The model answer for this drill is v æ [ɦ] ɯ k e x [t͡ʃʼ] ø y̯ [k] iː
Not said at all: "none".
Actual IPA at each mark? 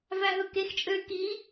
ɦ, t͡ʃʼ, k

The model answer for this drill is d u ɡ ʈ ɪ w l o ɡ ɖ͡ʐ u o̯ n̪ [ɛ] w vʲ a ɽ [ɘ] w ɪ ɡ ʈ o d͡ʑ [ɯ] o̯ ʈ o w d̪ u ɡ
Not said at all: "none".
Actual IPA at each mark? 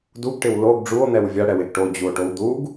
ɛ, ɛ, u

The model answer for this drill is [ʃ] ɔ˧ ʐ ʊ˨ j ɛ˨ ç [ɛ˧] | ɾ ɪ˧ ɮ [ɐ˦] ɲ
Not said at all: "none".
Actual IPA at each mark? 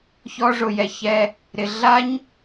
ç, ɛ˧, a˦

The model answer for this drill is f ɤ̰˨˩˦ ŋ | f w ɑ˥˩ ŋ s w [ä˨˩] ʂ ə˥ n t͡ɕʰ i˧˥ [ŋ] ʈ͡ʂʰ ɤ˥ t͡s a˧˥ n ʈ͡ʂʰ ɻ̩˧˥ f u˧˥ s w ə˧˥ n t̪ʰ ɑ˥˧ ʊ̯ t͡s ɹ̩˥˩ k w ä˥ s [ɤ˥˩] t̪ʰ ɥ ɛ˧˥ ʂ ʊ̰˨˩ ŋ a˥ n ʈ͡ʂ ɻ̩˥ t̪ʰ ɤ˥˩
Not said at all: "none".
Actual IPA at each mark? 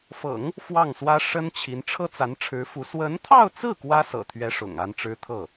ä˥, n, ɤ̰˨˩

